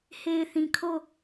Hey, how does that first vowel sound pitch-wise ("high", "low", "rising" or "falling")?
low